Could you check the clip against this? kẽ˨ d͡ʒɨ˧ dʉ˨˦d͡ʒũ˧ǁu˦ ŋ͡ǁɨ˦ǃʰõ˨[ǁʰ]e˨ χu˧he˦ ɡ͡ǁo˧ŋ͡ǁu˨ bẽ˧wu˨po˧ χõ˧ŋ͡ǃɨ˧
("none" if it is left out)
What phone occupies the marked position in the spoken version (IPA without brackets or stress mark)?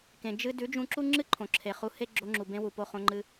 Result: ǁʰ